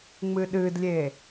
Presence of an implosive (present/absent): present